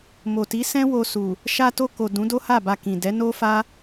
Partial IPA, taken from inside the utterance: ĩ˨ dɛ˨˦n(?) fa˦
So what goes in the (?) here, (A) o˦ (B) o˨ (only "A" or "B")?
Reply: A